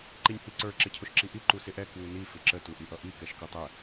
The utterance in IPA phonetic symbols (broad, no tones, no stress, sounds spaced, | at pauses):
ǃ i nʲ h i ǀ ə˞ ǁ ɪ cʰ ʊ ʃ ǁ i ʔ i ǃ u s ɪ ʔ ɛ k w u n i f ɪ ǁ ə t u ʔ i ʔ ʌ ʔ i k ɛ ʃ k u tˤ ɛ